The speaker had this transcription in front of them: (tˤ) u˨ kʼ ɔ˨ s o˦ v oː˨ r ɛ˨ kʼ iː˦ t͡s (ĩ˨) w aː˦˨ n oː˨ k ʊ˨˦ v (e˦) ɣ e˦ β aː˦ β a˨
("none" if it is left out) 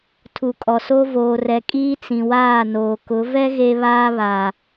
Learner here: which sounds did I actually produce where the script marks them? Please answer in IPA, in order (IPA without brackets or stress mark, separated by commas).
tʰ, ĩ˨, ɛ˦